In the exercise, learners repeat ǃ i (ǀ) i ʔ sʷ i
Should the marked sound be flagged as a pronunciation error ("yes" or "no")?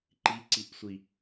no